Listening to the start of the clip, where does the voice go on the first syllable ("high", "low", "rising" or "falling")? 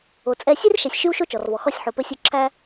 low